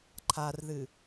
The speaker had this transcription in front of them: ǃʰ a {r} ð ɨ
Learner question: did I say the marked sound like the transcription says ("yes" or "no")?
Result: yes